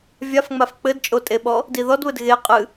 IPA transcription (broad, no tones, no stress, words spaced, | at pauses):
vʲafŋ͡maf k͡pɘdt͡ʃʼotʼeɓɔ | diðɔdβɘd ɣeqʼɨ